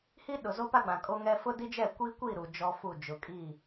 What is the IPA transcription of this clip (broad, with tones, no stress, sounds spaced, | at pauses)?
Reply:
h i˦ ɗ ʊ˨ z o˦ p a˦ ɡ͡b ã˨ kʼ o˦ ŋ ɛ˦ f ʊ˦ d i˦ d͡ʒ ɛ˦˨ kʷ i˦ kʷ i˦˨ ɾ u˨ d͡ʒ ɔ˦ f u˦˨ d͡ʒ ʊ˨ kʼ i˦˨